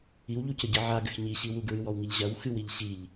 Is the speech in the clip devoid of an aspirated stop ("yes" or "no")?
yes